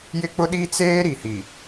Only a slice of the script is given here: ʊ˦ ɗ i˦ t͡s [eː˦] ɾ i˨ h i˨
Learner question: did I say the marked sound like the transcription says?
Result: yes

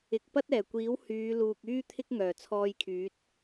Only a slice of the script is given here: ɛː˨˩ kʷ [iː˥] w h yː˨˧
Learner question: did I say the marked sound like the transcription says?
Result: no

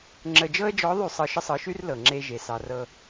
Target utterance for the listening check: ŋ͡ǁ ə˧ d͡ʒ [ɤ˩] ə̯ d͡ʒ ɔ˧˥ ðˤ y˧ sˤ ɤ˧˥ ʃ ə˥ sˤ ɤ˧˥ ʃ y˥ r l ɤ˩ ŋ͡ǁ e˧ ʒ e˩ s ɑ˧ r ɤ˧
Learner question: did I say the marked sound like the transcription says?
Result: no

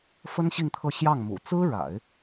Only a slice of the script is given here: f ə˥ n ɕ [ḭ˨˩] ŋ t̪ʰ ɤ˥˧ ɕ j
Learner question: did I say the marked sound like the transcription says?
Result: no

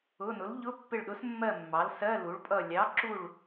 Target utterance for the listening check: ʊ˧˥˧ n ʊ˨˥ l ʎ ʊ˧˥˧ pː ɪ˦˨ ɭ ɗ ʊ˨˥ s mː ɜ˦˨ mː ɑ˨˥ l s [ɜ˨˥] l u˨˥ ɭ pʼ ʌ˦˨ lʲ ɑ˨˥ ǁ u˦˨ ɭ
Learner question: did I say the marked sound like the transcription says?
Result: no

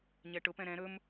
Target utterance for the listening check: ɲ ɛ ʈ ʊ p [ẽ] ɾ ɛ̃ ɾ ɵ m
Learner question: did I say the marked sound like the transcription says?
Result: no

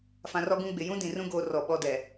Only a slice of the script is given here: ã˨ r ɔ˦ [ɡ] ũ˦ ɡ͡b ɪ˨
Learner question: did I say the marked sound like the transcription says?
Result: yes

